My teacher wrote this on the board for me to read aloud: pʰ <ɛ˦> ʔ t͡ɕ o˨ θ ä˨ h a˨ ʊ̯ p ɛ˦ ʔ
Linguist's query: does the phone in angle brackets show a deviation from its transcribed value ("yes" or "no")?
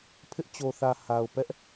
yes